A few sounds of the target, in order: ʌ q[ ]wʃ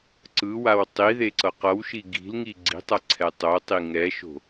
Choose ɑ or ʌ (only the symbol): ʌ